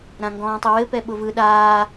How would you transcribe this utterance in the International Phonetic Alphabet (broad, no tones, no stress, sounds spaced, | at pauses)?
ɾ ã ŋ ɡ ɔ̃ː tˤ ɯ w ɘ p ɛ ɓ ʊ v ɯ ɗ aː